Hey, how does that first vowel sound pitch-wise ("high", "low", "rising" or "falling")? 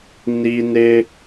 high